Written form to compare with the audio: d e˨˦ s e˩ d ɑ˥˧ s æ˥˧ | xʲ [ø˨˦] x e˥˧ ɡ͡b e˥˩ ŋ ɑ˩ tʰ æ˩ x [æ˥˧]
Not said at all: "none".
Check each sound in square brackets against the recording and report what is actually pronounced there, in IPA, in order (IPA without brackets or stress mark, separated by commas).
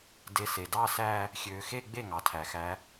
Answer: ø˨˦, æ˨˦